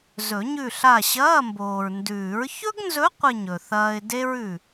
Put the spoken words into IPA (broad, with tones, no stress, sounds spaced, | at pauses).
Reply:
z ɵ˨˩˦ ɲ ʉ˦˨ ɬ a˦˨ ɕ ɐː˧˥˧ m b oː˨ ɹ n d ʉː˨˩˦ ɹ ç ɵ˥ ɡ n z ɵ˧˥ qʷ ɨ˦˨ ɲ ɵ˨ θ ɐː˥ ɪ̯ d e˥ ɹ ʉ˦˨